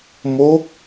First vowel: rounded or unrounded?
rounded